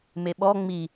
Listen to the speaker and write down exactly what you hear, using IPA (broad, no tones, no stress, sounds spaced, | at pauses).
m e ɓ ɔ ŋ͡m i